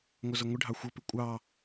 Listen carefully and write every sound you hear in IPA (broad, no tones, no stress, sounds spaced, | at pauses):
ŋʷ ʌ z ʌ ŋʷ ɪ ɖʱ ɑ xʷ ʌ p ɪ kʷʼ ɑ